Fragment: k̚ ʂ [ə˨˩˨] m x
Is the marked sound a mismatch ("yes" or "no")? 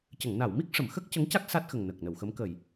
no